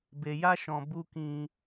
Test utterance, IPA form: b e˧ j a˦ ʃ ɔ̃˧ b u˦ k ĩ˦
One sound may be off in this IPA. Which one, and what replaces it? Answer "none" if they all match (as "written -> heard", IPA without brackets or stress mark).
none